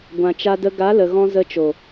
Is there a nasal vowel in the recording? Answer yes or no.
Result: yes